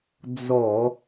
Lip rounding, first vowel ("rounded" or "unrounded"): rounded